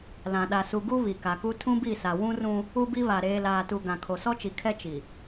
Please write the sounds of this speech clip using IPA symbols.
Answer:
l ã˨ ɗ a˨ s u˨ ɡ u˦ β i˨ k a˨ k u˦ tʰ ũ˦ b i˦˨ s a˨ w ũ˦ r ũ˦ | u˦ b i˦ β a˨ ɾ eː˨ l aː˨ t u˨ ɡ ã˨ kʰ o˨ s ɔ˦ t͡ʃ i˨ kʰ ɛ˦ t͡ʃ i˨

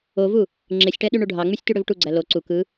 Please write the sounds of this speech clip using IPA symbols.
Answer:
o v u | ŋ͡ǁ e sʲ ʈ æ ɗ y ɳ u ɖʱ ɑ ŋ͡m y sʲ t y ɽ ø v ʈ u ɡ͡ǀ æ l o ǀ u k ɯ

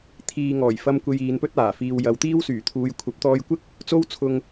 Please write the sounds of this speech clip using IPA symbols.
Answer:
t̪ʰ iː˨ ŋ ɔː˨˩ j f ɐ˧ m kʷ e˧ j iː˨˧ n p ɵ˥ t̚ aː˨˩ f iː˨ w j ɐ˨˧ w t̪ iː˥ w s yː˨˩ t̪ʰ uː˧ j kʷʰ ɐ˨˥ p̚ t̪ ɔː˧ j kʷ ɪ˥ k̚ | t͡s o˥ w t͡sʰ ʊ˧ ŋ

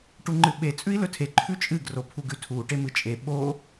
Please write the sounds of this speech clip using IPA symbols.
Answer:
ʈ u ŋ͡ǃ ɨ ɓ e t͡sʼ ʉ i̯ l ɵ tʰ e ǃʰ ʉ t͡ʃʼ ɨ ɡ r o pʰ u ɡ ʉ tʰ u ʈ e m ɨ t͡ʃʼ e ɓ o

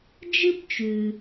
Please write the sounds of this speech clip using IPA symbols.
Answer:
d͡ʒ ɨ˥ b t͡ʃ ʉ˩

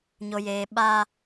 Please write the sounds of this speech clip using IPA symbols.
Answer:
ɲ o˨ j eː˨ ɓ a˦

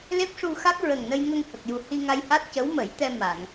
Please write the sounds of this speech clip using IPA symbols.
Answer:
l e˦˥ p̚ ʂ u˧ x a˦˥ k̚ ɹ ə˨˩ ŋ n ə˧ j ŋ ə˧ ŋ h ə˨˩ k̚ j u˨˩ h i˧ ŋ a˧ j h a˦˥ t̚ c ə˧˥ w m ə˨˩˦ j t̪ ɛ˧ m a˨˩˨ ŋ

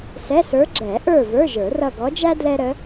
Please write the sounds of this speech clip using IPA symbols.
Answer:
s ɛ˧˥˧ s ə˞˧˥ ɡ͡ǁ ɛ˨˩˦ ʔ ə˞˦˨ v ə˞˧˥˧ ʒ ə˞˨˩˦ r ʌ˦˨ ɡ ɔ˧˥ d͡ʒ æ˥ d l ɛ˥ ɾ ə˧˥

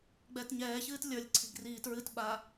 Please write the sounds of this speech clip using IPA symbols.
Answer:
ɡ͡b ɛː t ɲ ɛː ç ɨː t lʲ ə˞ lʲ ǀʰ i̤ ɡ r iː t ɹ ɨ t ɓ a

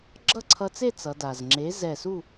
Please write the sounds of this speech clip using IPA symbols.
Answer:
ɡ͡ǁ ʌ˥˨ ǀʰ ʌ˧ t͡s e˥˨ t͡s ʌ˩˧ d a˩ z ŋ͡ǁ e˩˥ z ɛ˧˩ s u˥˨

